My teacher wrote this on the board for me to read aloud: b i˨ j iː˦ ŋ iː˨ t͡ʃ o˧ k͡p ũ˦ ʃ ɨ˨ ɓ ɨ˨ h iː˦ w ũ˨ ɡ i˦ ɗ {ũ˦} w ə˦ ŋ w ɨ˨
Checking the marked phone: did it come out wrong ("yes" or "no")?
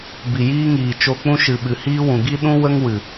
no